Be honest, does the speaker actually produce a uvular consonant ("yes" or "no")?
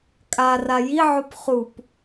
yes